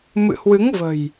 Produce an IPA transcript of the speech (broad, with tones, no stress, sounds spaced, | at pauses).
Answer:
m ɨ̰˧˨ h w ɨ˨˦ ŋ v ə̤˨˩ j